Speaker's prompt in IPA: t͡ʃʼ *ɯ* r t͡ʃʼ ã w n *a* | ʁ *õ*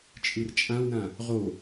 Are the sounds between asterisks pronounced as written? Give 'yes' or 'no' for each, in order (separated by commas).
yes, no, no